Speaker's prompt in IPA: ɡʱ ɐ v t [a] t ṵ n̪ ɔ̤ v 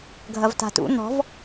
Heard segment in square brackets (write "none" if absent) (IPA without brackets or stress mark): a̤